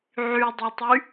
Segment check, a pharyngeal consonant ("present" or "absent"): present